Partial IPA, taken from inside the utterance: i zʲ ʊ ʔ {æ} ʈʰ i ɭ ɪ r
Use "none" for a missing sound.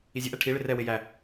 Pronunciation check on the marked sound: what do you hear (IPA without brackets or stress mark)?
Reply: æ